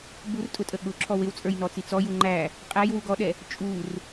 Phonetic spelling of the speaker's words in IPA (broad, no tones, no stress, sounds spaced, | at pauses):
b u r tʼ ʊ tʼ ə ɠ ʊ ǁʰ ɔ w ɪ w t͡sʼ ə˞ j n ɔ t͡s i t͡s ɔ j u ŋ͡ǃ æ | qʼ æ j w u ɡ ɔ ɗ ɛ | t͡ʃʼ u r